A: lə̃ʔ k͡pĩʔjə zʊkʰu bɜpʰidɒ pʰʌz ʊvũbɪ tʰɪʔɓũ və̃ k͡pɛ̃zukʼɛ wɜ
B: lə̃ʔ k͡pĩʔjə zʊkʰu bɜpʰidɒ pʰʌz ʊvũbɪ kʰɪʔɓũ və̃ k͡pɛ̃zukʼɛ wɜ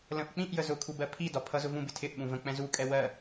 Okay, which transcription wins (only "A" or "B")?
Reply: A